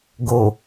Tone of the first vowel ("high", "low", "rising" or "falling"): low